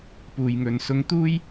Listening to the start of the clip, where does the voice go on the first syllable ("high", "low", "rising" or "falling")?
low